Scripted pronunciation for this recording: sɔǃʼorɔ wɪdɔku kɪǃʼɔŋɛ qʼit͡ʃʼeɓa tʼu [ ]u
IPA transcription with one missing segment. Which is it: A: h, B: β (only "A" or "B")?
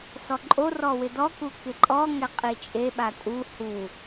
A